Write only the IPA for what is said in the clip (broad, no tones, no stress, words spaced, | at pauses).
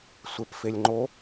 sʷepfelʲŋ͡ǃo